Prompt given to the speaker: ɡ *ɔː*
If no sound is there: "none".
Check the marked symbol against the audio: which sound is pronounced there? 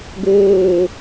oː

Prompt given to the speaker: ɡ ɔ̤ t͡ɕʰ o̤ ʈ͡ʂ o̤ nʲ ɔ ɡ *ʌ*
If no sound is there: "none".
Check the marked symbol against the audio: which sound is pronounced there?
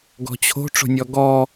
ɔ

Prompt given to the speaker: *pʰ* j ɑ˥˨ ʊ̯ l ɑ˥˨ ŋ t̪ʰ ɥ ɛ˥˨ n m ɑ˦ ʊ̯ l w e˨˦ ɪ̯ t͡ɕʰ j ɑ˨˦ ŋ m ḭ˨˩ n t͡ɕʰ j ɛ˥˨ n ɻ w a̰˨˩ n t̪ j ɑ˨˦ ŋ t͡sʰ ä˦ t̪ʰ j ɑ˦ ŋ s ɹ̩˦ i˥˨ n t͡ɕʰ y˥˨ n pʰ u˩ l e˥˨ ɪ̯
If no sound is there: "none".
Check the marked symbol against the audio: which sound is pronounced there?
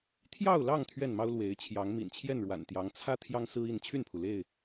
t̪ʰ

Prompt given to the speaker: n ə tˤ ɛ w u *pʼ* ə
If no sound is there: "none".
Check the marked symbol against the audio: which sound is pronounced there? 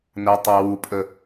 pʼ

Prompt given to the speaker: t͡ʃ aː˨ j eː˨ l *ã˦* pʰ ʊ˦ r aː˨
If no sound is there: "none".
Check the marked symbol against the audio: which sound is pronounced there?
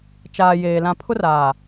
ã˨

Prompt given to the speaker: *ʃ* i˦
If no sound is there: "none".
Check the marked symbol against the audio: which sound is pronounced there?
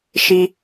ʃ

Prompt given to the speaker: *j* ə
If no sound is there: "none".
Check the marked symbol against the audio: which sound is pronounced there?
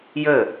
j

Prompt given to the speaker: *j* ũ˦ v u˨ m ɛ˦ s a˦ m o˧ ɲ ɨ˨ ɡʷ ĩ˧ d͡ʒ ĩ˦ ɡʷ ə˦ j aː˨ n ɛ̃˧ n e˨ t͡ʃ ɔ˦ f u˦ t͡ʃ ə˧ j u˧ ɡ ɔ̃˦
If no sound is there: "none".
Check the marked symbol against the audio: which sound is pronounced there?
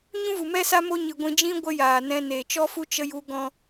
ɲ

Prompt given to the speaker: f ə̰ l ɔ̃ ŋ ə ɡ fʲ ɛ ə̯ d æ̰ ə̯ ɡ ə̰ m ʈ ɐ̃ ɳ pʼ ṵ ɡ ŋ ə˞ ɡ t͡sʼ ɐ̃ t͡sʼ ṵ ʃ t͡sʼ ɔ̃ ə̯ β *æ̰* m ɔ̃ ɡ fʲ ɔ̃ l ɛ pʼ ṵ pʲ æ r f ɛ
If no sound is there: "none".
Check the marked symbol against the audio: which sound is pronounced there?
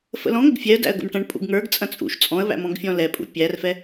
æ̰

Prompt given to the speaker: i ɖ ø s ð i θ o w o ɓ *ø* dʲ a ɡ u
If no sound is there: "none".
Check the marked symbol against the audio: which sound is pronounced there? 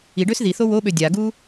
ø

